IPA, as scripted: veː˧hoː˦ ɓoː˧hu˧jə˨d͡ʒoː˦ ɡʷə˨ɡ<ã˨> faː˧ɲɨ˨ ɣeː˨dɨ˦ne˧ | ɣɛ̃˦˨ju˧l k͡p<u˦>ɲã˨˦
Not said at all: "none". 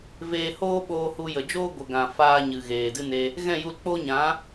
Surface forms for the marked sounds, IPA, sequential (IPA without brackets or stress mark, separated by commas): ã˨, o˦